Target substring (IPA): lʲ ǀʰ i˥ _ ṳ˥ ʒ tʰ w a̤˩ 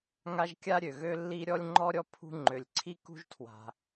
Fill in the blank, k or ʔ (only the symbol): k